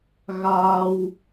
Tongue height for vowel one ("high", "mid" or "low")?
low